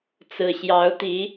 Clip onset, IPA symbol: t͡s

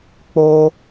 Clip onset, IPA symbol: k͡p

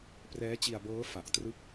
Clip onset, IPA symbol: p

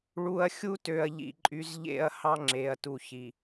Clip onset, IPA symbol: ɭ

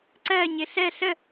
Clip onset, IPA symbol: ǀ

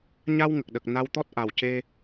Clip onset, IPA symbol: ɲ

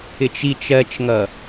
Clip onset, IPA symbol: ɪ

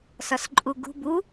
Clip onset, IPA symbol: s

